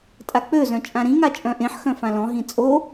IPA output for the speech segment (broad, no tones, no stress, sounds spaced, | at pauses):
tʼ a k͡p ø z œ̃ t͡ʃʼ ã ɾ ĩ ŋ a t͡ʃʼ œ̃ ʔ ẽ ħ x œ̃ f ã l ɔ̃ ɦ ĩ t͡sʼ o